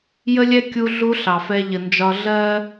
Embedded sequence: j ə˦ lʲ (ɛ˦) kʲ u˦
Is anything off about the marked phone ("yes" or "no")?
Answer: no